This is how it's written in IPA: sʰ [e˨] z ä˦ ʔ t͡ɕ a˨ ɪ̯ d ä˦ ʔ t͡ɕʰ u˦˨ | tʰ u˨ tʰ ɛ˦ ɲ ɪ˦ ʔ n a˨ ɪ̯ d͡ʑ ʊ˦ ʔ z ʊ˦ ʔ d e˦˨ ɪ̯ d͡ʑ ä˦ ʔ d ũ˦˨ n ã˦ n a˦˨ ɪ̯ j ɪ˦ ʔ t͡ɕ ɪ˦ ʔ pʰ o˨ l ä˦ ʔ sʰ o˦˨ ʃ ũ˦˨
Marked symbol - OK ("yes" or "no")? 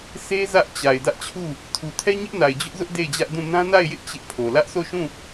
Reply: no